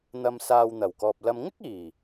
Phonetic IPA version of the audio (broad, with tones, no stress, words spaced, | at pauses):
n̪ɐ˨msaː˨w n̪ɐ˨˩wkɔː˨p̚ lɐ˧m ŋɪ˥k̚iː˨˩